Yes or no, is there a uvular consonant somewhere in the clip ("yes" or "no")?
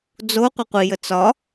yes